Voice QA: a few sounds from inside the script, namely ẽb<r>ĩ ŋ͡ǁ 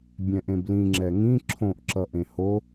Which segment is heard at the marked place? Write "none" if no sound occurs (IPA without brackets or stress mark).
l